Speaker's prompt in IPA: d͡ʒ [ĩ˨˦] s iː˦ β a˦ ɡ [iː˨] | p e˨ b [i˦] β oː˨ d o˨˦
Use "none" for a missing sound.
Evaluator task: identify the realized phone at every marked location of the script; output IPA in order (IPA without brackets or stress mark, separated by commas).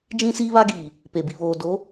ĩ˦, iː˨, i˨